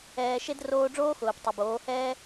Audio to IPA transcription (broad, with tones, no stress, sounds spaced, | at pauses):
ɛː˨ ʃ e˦ d r oː˧ ɖ͡ʐ oː˦ x ʊː˨ p tˤ ʊ˨ b oː˨˦ h ɛː˦